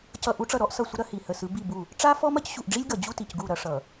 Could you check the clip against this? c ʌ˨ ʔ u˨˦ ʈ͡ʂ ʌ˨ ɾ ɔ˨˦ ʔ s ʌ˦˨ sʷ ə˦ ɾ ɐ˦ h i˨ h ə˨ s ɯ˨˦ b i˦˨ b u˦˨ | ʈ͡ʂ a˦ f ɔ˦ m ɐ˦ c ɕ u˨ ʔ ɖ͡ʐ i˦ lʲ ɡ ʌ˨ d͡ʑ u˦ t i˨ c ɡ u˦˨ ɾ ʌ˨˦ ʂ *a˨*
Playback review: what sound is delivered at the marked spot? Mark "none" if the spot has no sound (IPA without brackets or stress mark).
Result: ʌ˨